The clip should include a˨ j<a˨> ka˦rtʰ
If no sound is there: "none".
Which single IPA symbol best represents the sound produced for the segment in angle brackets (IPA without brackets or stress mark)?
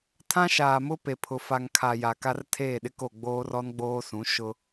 a˨